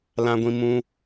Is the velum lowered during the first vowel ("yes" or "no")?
yes